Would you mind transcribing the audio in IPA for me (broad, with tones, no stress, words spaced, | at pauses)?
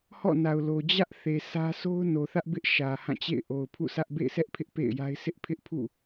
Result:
hɔ̰˦˨na˨ʊ̯lo˨ d͡ʑä˦ʔθe˨ sʰä˦ so˦ʊ̯no˨θä˦ʔbɪ˦ʔ ʃä˨hã˦˨t͡ɕḛ˦˨ɪ̯ ʔo˨ʊ̯pʰṵ˦˨ sʰä˦ʔ bḛ˦˨ɪ̯sɛ˦ʔpʰɪ˦ʔ pḛ˦˨ɪ̯ja˦ɪ̯ sʰɪ˦ʔpʰɪ˦ʔpʰṵ˦˨